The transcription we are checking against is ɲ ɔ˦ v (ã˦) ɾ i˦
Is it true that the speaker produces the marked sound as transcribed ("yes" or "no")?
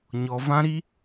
yes